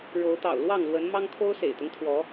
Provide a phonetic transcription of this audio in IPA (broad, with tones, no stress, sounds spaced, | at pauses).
ɻ o˨˦ ʊ̯ t̪ ɑ̰˨˩ ʊ̯ l w ɑ˥˨ ŋ l w ə˨˦ n m ɑ˦ ŋ kʰ o˦ ʊ̯ s ḛ˨˩ ɪ̯ t̪ ʊ˦ ŋ t̪ʰ w ɔ˨˦